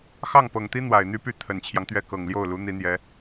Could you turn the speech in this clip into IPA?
x ɑ˥˩ ŋ p ɤ˨˩ ŋ t̪ i˥ n̪ w a˨˩ ɪ̯ n̪ y˥ p y˥˩ t̪ʰ ə˨˩ n t͡ɕʰ j ɑ˦ ŋ t̪ ɥ ɛ˥˩ k ɤ˨˩ ŋ l j o˥˩ ʊ̯ l u˧˥ n̪ i˧˥ n̪ j ɛ˧˥

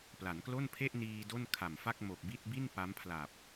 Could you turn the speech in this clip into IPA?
p l a˩˦ n k l o˥˩ n pʰ e˥˩ ʔ n iː˧ d o˥˩ n kʰ a˨˩ m f a˥˩ k̚ m o˨˩ k̚ b i˥˩ t̚ b i˥˩ n p a˦˥ m pʰ l a˨˩ p̚

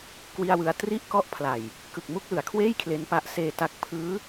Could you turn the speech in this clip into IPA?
k w i˥˩ a̯ w ɯ˦˥ a̯ t r i˥˩ ʔ k ɔ˥˩ ʔ pʰ l a˨˩ j | k ɯ˨˩ k̚ m u˥˩ k̚ l ɯ˩˦ a̯ kʰ w eː˥˩ j kʰ l e˦˥ n p a˦˥ ʔ s eː˧ t a˦˥ k̚ pʰ ɯː˦˥

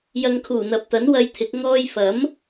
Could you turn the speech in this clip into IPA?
j ɐ˨˧ ŋ kʰ uː˨˩ n̪ ɐ˨ p̚ t̪ ɐ˨˥ n w ɐ˧ j t̪ʰ ɪ˨˥ k̚ ŋ ɔː˧ j f ɐ˨˥ m

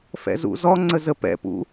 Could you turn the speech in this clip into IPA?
f ɛ̰ z ṵ z ɔ ŋ͡ǀ ə z ə p ɛ̰ p ṵ

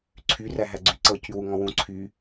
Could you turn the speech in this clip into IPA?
ǀʰ y r æ ɦ æ ɡ͡ǀ y ǀ ɤ c y w u ŋ ɔ̃ w ũ ǀʰ y

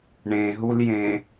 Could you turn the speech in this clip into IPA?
ɳ ẽ ɦ u l j ẽ

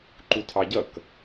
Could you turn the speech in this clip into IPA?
ǃ u tʰ ɑ ɟ ʌ k

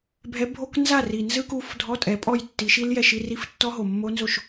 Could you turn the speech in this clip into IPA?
bʱ ɛ˨˦ bʱ o˧˥˧ k n z a˥˩ r i˨˩ n z ɯ˧˥˧ k u˨˦ f dʱ ɔ˧˥˧ tʼ ɛ˨˦ pʼ ɔ˥˩ j tː i˨˦ ʃ i˦˥ l j ɛ˧˥˧ ʃ i˧˥˧ r i˦˥ f tː ɔ˦˥ ɦ o˨˩ mː o˦˥ n z o˥˩ ʃ

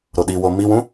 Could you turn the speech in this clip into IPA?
ɾ o ɗ i w o m i w ũ

